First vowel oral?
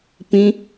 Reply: no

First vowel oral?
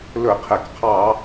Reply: yes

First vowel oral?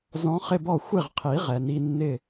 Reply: no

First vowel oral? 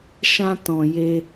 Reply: no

